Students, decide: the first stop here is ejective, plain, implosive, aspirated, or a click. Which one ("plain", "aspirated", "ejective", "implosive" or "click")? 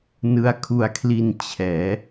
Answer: aspirated